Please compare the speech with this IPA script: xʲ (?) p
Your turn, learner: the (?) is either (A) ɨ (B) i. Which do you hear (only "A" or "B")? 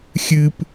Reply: A